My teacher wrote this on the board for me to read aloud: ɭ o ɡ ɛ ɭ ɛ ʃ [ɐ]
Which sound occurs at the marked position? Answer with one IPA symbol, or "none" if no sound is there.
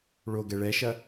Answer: ɐ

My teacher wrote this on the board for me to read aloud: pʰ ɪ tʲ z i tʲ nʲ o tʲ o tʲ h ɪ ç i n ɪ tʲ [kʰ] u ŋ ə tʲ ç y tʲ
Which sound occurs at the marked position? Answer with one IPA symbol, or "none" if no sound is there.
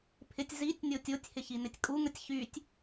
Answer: kʼ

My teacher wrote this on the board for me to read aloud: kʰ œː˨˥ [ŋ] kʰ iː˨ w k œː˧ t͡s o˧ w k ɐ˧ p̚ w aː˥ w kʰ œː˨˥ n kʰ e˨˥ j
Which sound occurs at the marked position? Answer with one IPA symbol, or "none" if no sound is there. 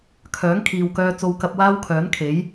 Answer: ŋ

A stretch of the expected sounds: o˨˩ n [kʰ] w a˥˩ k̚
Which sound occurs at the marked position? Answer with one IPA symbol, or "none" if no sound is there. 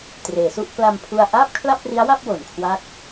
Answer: kʰ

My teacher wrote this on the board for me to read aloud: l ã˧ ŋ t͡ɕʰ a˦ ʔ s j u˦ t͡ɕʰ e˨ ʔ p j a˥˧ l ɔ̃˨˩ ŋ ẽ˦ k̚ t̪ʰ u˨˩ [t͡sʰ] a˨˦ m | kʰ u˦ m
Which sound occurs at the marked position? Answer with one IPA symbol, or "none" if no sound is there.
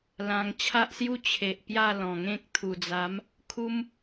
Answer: d͡z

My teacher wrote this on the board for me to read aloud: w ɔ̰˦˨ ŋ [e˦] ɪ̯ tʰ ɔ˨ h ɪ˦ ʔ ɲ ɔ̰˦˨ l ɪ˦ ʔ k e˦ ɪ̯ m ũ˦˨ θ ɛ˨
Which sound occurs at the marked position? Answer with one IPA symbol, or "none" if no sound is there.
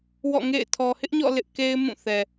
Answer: ḛ˦˨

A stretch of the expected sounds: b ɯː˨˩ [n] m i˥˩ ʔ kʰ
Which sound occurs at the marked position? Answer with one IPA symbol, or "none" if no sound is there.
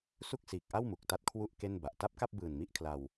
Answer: n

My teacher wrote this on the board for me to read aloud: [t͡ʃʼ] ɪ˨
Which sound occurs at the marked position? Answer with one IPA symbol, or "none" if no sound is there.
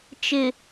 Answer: t͡ʃ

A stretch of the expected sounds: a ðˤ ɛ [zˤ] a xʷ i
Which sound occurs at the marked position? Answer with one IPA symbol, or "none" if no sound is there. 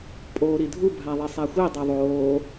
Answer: sˤ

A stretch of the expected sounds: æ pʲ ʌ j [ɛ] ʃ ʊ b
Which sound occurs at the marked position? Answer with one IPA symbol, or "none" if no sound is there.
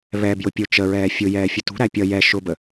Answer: ɛ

